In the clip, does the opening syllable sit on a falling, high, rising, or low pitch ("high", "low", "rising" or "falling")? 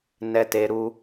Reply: high